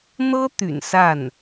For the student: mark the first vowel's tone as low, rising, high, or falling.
high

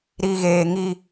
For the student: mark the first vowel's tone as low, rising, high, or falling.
low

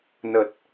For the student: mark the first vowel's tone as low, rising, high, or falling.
low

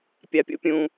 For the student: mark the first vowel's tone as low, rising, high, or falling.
low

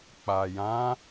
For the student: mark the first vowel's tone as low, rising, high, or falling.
low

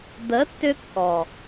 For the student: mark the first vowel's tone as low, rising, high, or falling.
rising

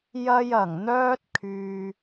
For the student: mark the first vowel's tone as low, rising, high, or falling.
high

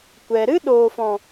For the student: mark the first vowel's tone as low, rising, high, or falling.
low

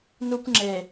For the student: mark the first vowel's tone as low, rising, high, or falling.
high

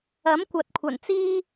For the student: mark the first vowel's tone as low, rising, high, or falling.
rising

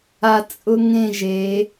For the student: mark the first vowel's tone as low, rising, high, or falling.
low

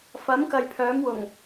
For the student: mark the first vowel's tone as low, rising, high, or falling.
rising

